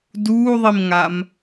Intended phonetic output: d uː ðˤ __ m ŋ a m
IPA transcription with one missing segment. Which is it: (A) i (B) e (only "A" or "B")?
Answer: A